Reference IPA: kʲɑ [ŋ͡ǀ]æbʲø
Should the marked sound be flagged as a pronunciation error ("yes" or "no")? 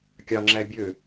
yes